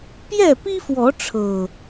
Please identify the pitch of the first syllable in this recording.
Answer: falling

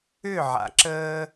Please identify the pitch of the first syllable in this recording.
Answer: falling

